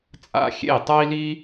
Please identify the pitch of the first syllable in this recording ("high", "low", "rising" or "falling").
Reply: high